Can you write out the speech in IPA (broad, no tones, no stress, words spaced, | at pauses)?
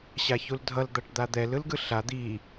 ɕaçuldʱʌl d̪aʈd̪ad̪ɛl ɯlɡɯɬa d̪i